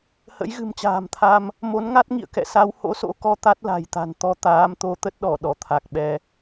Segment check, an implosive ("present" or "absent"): present